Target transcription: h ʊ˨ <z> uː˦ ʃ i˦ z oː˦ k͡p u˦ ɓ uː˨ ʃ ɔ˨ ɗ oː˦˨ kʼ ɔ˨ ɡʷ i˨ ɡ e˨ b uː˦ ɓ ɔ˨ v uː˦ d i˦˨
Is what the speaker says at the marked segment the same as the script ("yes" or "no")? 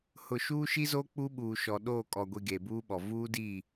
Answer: no